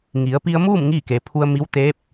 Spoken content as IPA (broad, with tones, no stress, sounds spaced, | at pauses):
ŋ i˩˧ ə̯ p i˧ ə̯ m uː˥˨ m ŋ iː˥˨ k e˩˧ pʰ u˧ ə̯ m i˧˥ w t̪ eː˧˥ p̚